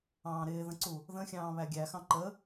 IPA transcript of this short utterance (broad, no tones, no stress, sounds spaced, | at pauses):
ɑ̃ː ɾ ɪː ð ə̃ ǀ u | ð ə̃ xʲ ɑ̃ː β æ ɡʲ æ x ɑ̃ ǃ ə